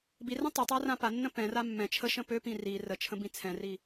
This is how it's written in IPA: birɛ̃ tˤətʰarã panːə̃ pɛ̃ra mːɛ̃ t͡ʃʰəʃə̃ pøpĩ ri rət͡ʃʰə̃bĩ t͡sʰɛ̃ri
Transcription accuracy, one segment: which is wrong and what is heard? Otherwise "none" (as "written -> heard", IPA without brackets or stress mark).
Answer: tʰ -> tˤ